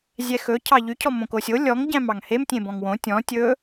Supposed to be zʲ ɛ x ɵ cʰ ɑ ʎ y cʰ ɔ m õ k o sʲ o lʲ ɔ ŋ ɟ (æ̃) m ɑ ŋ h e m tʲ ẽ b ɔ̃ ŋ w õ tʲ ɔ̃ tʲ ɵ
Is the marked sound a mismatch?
no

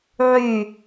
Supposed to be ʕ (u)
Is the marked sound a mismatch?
yes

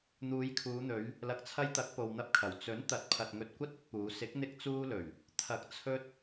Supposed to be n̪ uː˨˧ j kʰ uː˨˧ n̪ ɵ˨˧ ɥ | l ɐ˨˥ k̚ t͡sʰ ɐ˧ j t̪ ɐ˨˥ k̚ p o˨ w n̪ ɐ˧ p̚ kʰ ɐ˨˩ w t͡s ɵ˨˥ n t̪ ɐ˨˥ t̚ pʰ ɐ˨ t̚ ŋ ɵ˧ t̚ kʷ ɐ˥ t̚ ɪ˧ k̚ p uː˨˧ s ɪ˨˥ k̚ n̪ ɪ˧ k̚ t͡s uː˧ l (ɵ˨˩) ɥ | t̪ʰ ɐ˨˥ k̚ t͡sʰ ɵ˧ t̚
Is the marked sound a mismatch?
no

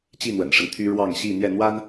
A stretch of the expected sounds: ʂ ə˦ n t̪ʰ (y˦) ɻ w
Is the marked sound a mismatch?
no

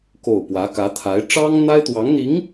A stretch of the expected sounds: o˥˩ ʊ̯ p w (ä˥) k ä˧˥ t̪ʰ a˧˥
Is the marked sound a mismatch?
yes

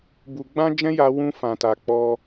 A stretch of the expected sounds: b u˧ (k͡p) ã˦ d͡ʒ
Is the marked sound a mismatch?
yes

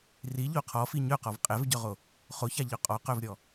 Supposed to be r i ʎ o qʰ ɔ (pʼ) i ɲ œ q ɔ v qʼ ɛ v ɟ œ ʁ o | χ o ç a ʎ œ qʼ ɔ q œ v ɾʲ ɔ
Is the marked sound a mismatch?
yes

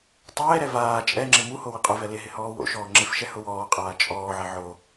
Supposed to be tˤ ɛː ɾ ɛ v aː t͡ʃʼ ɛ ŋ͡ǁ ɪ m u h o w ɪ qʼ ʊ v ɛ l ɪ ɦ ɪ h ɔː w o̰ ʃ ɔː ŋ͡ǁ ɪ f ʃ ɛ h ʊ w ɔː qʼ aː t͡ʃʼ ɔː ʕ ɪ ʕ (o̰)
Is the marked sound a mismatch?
yes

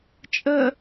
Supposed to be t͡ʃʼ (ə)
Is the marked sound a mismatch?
no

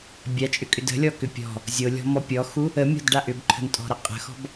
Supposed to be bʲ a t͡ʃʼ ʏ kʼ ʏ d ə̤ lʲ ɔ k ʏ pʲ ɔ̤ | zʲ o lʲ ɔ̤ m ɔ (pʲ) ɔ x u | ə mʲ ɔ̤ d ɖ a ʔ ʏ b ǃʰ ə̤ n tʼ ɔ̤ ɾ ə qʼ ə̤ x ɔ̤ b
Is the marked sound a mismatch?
no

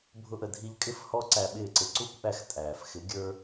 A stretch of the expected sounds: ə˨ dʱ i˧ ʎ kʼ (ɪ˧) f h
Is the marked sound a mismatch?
yes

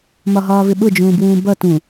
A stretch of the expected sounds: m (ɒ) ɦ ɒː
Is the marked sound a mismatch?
no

